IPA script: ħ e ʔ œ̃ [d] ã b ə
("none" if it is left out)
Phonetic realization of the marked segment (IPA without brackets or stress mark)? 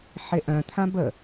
t̪ʰ